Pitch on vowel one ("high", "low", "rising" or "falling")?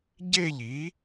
falling